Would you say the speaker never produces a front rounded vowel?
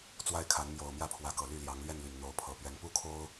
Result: no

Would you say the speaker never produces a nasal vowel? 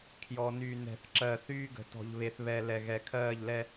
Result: yes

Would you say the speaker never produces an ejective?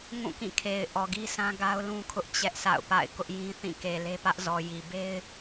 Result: yes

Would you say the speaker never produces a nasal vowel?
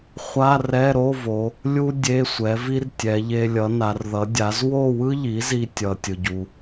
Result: yes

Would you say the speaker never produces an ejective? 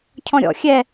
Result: yes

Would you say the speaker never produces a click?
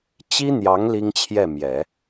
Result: yes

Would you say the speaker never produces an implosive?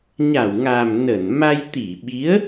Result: no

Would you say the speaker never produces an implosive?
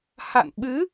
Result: no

